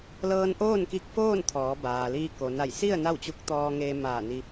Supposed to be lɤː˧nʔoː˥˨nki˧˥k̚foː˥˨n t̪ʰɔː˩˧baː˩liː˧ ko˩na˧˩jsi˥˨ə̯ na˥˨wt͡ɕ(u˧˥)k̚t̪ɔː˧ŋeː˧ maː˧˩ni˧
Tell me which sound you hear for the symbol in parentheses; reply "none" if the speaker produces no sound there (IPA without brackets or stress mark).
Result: u˧˥